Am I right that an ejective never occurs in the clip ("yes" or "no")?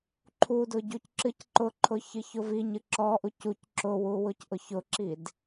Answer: yes